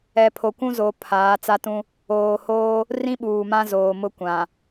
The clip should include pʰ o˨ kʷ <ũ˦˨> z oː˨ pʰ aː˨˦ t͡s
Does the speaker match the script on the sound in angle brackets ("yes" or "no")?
no